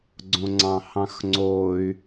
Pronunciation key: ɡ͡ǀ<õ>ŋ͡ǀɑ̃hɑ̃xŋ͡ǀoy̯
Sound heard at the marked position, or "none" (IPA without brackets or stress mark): õ